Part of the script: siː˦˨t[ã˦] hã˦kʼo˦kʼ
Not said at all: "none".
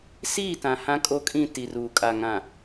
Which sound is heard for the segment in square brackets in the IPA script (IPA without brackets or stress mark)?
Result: ã˨